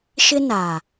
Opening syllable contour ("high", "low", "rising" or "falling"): high